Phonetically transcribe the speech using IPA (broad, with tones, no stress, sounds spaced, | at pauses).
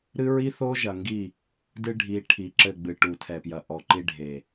ɾ ɨ˦ ɹ i˦ θ o˦ ʒ ɐ˨ ŋ ɡ i˦˨ | d ɨ˦ ɖʱ i˨˦ ʈʰ i˨ ǁ ɘ˦˨ ɡ͡b ɨ˨ ʈ u˨ tʰ ɛ˨ p j ɐ˨ ʔ ɔ˨ ǃ i˦ ɖʱ e˨